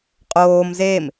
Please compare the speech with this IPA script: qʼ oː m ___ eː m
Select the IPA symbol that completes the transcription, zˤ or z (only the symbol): z